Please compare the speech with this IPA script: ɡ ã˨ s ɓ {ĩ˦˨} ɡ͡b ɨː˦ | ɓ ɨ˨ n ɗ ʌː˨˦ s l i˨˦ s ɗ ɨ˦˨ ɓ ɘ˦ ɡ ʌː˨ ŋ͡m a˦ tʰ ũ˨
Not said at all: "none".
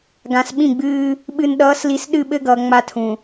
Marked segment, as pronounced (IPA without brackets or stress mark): ĩ˦˨